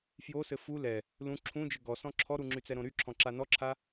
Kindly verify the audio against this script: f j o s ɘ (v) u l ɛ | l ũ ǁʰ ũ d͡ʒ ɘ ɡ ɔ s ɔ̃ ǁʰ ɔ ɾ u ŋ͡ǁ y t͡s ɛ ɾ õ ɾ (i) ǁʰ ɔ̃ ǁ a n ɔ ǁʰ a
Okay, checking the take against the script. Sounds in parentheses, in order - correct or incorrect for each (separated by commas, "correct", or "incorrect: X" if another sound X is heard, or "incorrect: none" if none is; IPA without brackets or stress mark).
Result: incorrect: f, incorrect: y